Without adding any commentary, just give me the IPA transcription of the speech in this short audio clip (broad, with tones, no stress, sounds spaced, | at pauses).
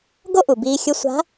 ɡ o˥ ʔ u˩ b iː˧ xʲ ʊ˧˥ sʷ a̤˧˥